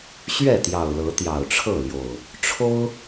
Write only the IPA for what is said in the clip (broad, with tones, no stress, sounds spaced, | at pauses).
ɕ ɥ ɛ˥˨ t̪ j ɑ˨˩ ʊ̯ l ɤ˨˦ t̪ j ɑ˨˩ ʊ̯ ʈ͡ʂʰ ɤ˥˨ l j o˨˩ ʊ̯ | ʈ͡ʂʰ o˦ ʊ̯